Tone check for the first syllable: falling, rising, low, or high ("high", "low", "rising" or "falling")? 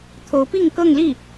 rising